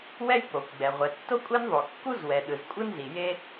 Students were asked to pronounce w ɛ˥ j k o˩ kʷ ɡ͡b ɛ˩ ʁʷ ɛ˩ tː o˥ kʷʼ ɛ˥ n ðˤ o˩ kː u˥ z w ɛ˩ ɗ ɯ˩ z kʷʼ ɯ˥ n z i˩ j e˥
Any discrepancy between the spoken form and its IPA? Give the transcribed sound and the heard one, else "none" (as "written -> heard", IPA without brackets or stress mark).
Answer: k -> k͡p